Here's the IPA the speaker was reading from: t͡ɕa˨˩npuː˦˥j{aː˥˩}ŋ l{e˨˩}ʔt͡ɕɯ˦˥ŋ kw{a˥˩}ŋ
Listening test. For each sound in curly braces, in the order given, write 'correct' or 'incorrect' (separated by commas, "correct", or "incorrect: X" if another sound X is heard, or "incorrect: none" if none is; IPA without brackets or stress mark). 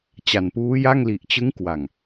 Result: incorrect: a˥˩, incorrect: i˨˩, incorrect: a˨˩